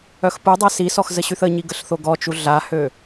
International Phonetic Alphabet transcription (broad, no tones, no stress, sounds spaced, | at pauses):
œ x p u dˤ a s i s ɔ x z ə ɕ y θ ə ɲ i ɡ ə ɬ θ o ɡ ɔ t͡ʃ u ɮ a h ø